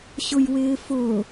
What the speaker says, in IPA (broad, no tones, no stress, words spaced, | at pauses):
ɕʊjwɪːfʊː